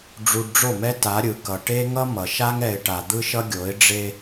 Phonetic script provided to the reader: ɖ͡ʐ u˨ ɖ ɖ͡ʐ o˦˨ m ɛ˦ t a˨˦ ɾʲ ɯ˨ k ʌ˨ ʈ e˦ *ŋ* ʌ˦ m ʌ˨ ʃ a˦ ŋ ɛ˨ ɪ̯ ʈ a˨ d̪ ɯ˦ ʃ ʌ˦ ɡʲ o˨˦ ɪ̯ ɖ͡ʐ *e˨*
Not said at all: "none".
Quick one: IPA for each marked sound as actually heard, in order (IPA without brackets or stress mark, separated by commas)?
ŋ, e˦